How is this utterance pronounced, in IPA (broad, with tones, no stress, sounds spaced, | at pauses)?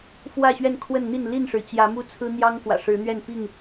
f w ä˥˨ ɕ ɥ ɛ˥˨ n kʰ w ə˥˨ n n̪ i˥˨ n l i˥˨ n ʂ ɻ̩˩ t͡ɕ j ä˨˦ m u˦ t͡sʰ ɹ̩˦ n̪ j ɑ˦ ŋ k w ä̰˨˩ ʂ ɻ̩˨˦ n̪ ɥ ɛ˥˨ n p i˥˨ ŋ